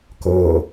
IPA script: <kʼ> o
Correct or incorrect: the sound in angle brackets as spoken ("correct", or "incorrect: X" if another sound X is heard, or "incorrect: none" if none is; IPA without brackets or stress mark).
incorrect: k